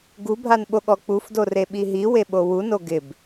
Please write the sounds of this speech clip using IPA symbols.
ɡubʱan ɓoɠɔk͡pufdo reɓiɦiwe ɓowuno ɡɪb

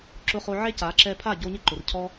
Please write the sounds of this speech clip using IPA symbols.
ǁʊ˧χo˧ʕe˦ ca˨˦ǁɛ˧pʰa˦˨ ɟo˧ɲɪ˦ ǃʊ˨rcʰɔ˦

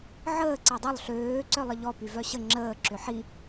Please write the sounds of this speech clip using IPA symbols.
ʕəː ǀɛdˤœlˠ ɬøː ǀœlˠəʎɔ pyvœɕə ŋ͡ǁəː ǁʏħi

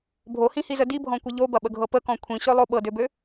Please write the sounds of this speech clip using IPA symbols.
bʱohĩhizə dibʱɔ̃kʷə ʎobɐɓəɡʱɤ pəkɔ̃ kʷʰĩɕølˠo ɓɤdøbø

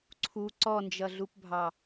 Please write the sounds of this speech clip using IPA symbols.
ǀʰu ǀɔnd͡ʒʌɮupbʱɑ

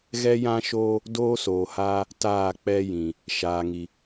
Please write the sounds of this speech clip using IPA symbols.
ɣɛ˦jã˦ʃoː˦ | doː˦soː˨haː˦ | taː˦˨k͡pɛ˦jĩ˨ | ʃaː˨ŋi˨

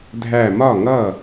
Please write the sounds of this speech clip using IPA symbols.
dʱæ˧˩mɒ˥˩ŋʌ˥˩

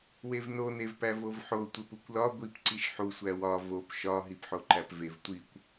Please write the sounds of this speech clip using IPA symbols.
wevno nevpævovħo tʷepukʷlɒ ɡʷip ǀiʃħu sʷæwɒ vop ʃɒ ɦipħoǃæpvev tʷikʷ

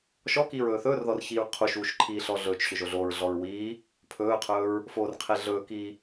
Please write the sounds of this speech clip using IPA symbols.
ʃɔkiːɹ ɵːθɵːrðɔr çiːɹqʰuʃuːʃ ǃʰiːɬɔɮɵːt͡ʃɕɵ ʒoɮoːɹɮɔɹ wiː | pʰɵːqʰɵːɹ | foːrqʰeɮɵːkiː

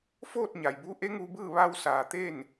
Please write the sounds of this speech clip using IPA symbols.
foː˥˨t̚ ɲa˩jbu˧˥ ʔe˧˥ŋu˧bɯː˥˨ ʋa˧wsaː˩t̪e˥˨n

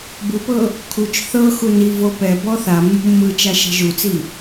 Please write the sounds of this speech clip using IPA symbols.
bupɤ | kʰut͡ʃ θɤ xuni vopɛ bɔθa mːṳmːɯt͡ʃa ʃɛ̤ʒut͡si

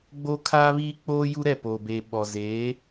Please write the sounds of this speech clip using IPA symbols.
ɡ͡bo˦kʰaː˦βiː˦k͡poː˦ ju˦ɾɛ˦˨ poː˨beː˨ ɓɔ˨ zeː˨˦

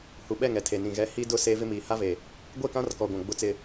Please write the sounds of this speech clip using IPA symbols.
hu˨ɓɛ˦˨ŋ ɛ˨tʰe˨nĩ˨ ɣɛ˨ hi˦dʊ˦ se˦vɪ˦miː˨ ha˦ve˨ | ɡʷe˦˨kã˦rkɔ˨ɡʷã˨ ɡ͡bʊ˦t͡sɪ˦

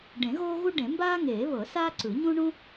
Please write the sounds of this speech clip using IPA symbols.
ɖẽ˨˩˦ ɣoː˥ɣu˥ ɖẽ˨˩˦mbaː˥ŋeː˨˩˦βɤ˨˩˦ saː˥ǀɯ˨˩˦ɲũ˥ ɳũ˥

